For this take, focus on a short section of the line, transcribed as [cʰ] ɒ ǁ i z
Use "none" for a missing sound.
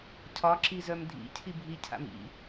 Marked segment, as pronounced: cʰ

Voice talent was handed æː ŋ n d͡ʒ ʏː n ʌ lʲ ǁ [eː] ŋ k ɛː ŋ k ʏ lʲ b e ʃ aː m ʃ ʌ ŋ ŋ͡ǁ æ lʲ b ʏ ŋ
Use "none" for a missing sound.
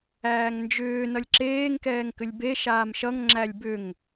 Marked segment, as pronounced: eː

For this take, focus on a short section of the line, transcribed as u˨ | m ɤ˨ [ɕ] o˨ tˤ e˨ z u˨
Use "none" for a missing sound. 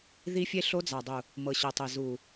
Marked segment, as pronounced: ɕ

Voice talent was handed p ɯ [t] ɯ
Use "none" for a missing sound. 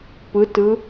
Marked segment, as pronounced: t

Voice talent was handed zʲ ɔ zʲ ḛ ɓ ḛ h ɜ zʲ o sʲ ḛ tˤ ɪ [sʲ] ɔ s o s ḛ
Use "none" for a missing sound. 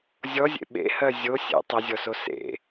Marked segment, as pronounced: zʲ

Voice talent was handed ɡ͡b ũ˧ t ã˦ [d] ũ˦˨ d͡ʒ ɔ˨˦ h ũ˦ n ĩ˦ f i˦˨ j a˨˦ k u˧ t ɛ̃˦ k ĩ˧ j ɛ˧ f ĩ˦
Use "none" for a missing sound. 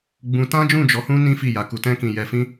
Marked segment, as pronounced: d͡ʒ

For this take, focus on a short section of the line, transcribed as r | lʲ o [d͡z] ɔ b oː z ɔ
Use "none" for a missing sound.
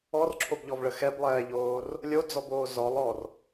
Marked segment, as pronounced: d͡z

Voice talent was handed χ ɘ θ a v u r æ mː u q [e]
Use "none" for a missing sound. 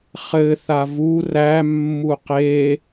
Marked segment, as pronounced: e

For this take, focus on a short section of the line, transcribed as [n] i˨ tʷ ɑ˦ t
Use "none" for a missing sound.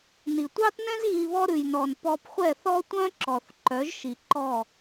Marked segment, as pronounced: n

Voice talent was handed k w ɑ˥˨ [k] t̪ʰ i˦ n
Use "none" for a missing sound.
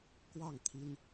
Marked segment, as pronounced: ŋ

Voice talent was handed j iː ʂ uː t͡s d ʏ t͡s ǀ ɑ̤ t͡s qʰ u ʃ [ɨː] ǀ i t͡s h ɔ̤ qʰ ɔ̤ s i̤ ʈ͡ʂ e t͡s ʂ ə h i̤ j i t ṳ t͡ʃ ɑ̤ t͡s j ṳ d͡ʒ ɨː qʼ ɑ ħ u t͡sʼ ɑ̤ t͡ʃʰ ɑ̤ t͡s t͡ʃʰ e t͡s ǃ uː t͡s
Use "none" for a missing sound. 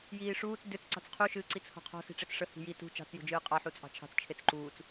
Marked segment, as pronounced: ɨː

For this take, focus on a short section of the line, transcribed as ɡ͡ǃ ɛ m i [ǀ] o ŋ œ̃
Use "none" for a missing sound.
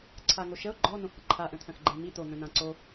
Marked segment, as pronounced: t̪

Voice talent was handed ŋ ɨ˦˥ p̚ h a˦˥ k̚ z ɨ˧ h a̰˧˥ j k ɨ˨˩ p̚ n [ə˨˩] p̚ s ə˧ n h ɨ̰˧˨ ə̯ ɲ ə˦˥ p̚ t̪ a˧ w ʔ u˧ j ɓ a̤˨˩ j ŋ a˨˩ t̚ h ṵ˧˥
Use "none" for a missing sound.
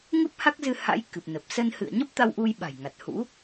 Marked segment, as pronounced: ə˨˩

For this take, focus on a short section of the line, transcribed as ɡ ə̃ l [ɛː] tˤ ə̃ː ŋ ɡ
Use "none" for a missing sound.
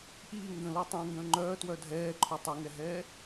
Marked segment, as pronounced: əː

